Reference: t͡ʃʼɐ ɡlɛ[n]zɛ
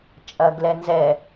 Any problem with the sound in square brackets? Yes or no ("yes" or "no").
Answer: no